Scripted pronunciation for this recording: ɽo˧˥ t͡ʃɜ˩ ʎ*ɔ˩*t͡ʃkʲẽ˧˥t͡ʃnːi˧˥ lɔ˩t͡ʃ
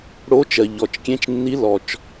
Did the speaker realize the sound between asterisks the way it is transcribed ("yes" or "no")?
yes